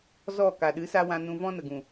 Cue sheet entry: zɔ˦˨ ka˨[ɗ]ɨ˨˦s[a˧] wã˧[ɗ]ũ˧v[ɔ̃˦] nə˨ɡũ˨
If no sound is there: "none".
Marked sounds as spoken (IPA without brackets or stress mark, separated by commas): ɗ, a˧, n, ɔ̃˦